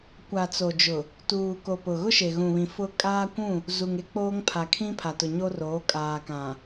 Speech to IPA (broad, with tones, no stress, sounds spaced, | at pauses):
kʷ a˨ t͡s o˨ d͡ʒ ʊ˨ | t uː˨ k o˨ p ʊ˨ ɣ ʊ˦ ʃ e˨ ɣ ũ˨ β ĩ˨ f ʊ˦ kʼ aː˦ kʷ ũ˦˨ | z u˨ ŋ e˦ k͡p oː˦ ŋ pʰ a˨ kʰ ĩ˦ pʰ a˨ t ʊ˨ ɲ o˦ r oː˨˦ kʼ aː˨ k ã˨